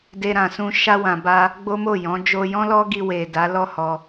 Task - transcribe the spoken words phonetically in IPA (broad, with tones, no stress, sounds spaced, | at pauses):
d e˧ ɾ ã˨ s ũ˧ ʃ a˧ w ã˨ b a˧ | ɡ͡b o˦ m o˦˨ j ɔ̃˨˦ d͡ʒ o˧ j ɔ̃˦ l ɔ˦ ɡ i˧ w e˨ d a˨˦ l ɔ˦˨ h ɔ˧